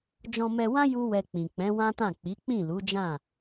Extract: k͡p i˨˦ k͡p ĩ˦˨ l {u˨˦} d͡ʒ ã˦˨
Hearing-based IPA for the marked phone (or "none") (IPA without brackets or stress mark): u˨˦